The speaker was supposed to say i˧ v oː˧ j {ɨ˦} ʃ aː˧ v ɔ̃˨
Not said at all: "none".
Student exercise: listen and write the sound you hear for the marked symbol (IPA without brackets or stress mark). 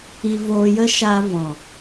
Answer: ə˦